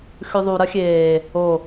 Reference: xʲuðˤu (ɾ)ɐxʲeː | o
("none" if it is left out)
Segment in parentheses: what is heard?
ɾ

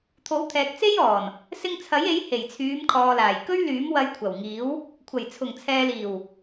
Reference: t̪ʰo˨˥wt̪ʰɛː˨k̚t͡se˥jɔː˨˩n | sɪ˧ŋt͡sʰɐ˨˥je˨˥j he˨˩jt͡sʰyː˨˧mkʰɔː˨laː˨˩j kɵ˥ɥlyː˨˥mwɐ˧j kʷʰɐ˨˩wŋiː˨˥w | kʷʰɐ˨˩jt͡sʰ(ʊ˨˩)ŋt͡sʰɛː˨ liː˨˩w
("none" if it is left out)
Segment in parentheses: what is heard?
ʊ˨˩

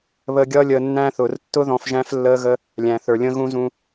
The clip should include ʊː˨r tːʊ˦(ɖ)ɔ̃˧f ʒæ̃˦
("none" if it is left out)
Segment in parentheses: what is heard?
ð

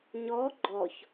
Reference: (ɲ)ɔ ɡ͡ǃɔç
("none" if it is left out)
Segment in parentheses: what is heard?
ɲ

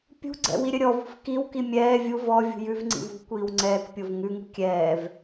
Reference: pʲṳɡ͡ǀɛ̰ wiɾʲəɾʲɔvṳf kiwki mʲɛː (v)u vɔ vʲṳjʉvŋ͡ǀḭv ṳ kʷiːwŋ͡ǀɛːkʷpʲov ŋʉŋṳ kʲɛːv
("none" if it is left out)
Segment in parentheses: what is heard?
vʲ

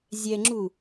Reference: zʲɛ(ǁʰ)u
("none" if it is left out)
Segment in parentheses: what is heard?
ŋ͡ǁ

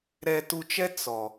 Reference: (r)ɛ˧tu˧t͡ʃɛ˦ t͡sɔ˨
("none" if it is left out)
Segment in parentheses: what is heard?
ɾ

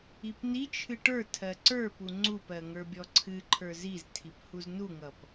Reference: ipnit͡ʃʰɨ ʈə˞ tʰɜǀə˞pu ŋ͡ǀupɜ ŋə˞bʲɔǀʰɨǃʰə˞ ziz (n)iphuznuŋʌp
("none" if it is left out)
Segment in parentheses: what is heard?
tʰ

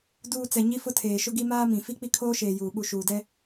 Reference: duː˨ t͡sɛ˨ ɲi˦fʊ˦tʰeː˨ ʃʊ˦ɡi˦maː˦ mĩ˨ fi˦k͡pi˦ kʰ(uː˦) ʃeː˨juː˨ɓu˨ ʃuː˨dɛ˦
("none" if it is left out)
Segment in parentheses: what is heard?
oː˦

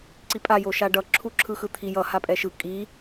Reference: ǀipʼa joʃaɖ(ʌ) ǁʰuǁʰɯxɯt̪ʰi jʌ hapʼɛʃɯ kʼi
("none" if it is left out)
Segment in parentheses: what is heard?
ʌ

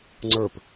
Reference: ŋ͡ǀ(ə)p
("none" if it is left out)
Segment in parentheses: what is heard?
ə˞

